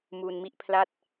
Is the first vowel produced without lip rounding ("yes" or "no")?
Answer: no